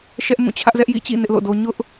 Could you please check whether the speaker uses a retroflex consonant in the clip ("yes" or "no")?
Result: no